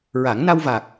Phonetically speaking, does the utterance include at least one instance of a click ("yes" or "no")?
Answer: no